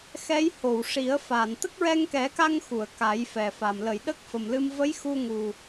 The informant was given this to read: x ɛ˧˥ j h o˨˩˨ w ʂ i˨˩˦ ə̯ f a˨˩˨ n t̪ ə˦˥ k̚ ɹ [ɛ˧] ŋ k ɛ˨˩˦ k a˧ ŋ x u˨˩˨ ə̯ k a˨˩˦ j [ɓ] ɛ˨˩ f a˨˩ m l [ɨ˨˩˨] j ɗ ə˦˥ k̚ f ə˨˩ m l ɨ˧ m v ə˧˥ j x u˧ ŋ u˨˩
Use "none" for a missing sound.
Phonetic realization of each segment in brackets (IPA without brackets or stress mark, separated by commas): ɛ˧, f, ə˨˩˨